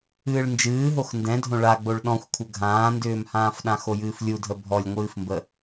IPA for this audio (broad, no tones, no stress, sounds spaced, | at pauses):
ɨː ɭ n d͡ʒ ɨː ɦ o x n d ɛ̃ dʱ õ ɭ a ɡ͡b o ɭ ɗ ɔ̃ xʷ kʷʰ ə ɡʱ ãː n d ʏː m h ãː f ɗ ã x o j ɨː f lʲ u dʱ ə bʱ ɔ lʲ ŋʷ ɨː f m b ə